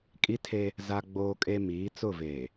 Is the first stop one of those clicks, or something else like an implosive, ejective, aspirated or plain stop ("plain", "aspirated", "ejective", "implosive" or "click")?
ejective